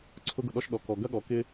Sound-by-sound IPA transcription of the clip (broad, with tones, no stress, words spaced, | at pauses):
ǀʰʊ˥ɡʊ˩ɗɔ˥ʃɗɔ˩ kɔ˩ɡɐ˥ɠɔ˩ kɪ˥